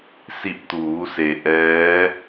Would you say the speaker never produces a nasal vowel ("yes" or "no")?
yes